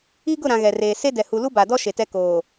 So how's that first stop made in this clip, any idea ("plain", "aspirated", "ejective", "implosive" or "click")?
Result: plain